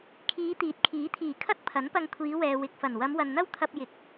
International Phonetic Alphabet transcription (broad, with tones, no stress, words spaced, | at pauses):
kʰiː˨˧t̪iː˨˥t̚ kʰiː˨˥t̪ʰiː˨˩ kʰɐ˥t̚ pʰɐ˨˥npɐ˧ŋ kʷʰiː˨˧wɛː˨ wɪ˨k̚fɐ˨˩n wɐ˨˧mwɐ˨nn̪ɐ˥w t̪ʰɐ˧p̚jɪ˨˥k̚